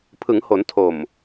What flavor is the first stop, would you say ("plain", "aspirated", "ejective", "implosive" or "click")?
aspirated